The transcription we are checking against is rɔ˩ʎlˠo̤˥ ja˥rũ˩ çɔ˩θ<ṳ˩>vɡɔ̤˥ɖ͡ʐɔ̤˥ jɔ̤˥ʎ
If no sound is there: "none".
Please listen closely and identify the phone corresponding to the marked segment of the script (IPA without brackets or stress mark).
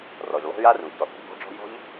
o̤˩